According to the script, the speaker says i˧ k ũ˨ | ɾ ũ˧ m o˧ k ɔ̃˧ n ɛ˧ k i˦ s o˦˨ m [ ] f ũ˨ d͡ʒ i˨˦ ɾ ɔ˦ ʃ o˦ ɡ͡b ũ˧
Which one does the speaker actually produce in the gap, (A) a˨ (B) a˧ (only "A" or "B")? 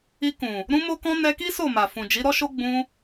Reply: A